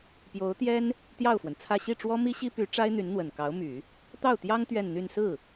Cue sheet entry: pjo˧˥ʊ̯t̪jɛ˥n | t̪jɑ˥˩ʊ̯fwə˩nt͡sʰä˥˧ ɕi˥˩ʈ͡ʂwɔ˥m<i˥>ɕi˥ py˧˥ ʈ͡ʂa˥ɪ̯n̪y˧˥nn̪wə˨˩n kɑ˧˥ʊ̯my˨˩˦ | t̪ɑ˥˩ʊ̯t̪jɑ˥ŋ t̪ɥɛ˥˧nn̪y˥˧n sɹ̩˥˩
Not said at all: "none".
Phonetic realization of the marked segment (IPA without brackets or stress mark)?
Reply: i˥